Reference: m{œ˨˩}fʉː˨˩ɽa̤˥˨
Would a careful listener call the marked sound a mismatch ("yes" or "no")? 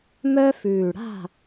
yes